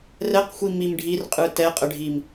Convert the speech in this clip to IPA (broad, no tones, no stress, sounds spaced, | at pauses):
r ɛ q xʷ i m i m ɖʱ i r qʼ ɯ t ɛ qʼ ə ɖʱ i m